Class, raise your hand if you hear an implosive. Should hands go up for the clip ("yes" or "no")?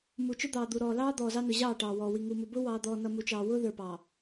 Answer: no